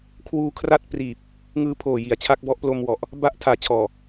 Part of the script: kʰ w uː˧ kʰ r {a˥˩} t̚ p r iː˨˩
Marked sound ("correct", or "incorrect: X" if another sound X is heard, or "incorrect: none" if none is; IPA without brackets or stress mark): correct